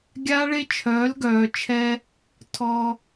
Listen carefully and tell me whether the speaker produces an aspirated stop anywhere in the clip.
yes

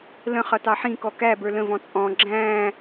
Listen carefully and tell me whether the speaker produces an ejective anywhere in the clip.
yes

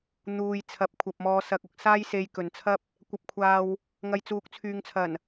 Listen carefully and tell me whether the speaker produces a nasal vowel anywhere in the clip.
no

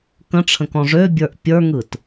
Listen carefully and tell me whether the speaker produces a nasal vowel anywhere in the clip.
yes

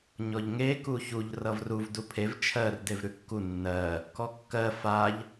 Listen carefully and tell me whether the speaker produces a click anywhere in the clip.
no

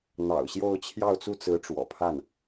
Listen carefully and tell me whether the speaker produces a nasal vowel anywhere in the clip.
no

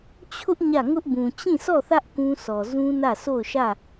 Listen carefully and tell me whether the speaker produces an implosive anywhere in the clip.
no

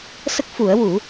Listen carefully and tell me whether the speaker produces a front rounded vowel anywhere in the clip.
no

